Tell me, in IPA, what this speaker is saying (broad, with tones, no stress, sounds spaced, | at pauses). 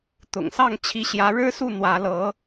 t̪ ʊ̰˨˩ ŋ s ɑ˥˩ ŋ t͡ɕʰ i˧˥ ɕ j ä˧˥ ɻ ɻ̩˥ s u˥˩ n̪ w ä˧˥ l ɤ˧˥